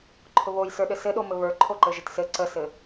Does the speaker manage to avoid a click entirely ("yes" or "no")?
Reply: no